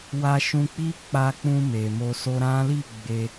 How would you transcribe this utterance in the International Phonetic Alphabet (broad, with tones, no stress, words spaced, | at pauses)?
wa˧ʃũ˧k͡pi˦ k͡pa˧k͡pũ˧ me˨mo˧ so˧ɾã˦ li˦˨ ɡ͡be˧